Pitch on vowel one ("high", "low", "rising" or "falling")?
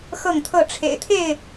falling